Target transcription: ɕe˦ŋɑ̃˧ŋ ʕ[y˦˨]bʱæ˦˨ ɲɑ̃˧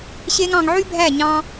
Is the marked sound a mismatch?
yes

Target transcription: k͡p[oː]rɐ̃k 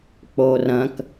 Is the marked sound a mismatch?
no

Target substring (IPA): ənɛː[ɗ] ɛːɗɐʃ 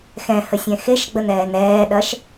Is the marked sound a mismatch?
yes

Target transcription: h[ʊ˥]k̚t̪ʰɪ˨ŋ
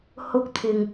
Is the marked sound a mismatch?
yes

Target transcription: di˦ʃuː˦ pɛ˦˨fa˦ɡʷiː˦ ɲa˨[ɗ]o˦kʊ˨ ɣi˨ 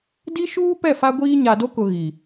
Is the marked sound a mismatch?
yes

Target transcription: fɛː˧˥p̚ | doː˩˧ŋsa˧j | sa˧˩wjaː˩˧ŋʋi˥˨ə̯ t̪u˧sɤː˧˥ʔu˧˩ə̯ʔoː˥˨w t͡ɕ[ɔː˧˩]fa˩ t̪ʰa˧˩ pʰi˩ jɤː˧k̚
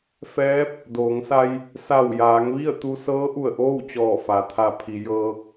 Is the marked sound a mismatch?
no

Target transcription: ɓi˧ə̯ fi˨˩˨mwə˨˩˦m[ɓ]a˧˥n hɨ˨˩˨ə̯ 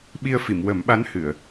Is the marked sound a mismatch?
no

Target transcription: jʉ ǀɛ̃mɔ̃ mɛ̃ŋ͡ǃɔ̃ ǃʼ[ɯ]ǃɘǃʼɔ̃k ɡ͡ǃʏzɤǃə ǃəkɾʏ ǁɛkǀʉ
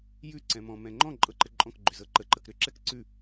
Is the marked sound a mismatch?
yes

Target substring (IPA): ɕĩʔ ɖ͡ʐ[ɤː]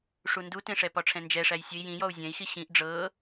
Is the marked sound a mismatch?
no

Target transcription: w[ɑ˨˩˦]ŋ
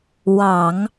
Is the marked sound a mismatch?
no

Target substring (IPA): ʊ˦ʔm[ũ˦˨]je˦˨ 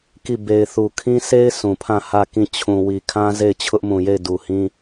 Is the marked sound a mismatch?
yes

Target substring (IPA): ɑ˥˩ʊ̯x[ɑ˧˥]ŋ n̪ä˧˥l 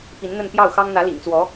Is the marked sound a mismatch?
yes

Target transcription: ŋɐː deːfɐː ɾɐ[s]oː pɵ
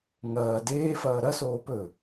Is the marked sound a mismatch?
no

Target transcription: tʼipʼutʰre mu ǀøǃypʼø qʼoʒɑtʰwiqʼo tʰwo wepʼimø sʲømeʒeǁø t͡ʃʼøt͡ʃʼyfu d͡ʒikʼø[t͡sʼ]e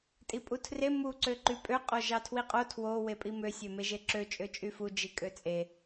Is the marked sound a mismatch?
no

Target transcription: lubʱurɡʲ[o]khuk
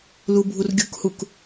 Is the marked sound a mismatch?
yes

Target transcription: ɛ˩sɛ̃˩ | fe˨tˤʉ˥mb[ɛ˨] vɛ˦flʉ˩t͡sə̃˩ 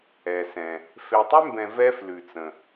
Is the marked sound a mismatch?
yes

